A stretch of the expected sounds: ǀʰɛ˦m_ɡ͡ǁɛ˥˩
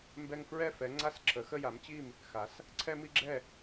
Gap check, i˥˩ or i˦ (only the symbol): i˦